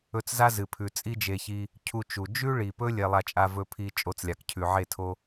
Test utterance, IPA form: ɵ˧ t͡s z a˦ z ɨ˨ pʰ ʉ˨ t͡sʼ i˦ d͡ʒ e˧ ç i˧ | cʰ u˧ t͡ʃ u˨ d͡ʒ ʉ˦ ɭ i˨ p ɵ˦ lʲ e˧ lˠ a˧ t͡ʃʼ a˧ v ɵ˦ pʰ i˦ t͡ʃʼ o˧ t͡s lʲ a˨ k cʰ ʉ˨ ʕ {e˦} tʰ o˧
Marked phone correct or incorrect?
incorrect